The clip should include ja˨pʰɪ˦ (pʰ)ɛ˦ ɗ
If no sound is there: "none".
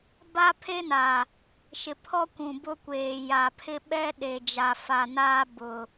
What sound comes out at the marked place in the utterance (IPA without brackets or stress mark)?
ɓ